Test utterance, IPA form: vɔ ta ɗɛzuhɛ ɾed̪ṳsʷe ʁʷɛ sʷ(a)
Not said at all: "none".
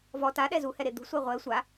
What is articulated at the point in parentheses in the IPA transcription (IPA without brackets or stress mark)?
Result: a